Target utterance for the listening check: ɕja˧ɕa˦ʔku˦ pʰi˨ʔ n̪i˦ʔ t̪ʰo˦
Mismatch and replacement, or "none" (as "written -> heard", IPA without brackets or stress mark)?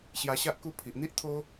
none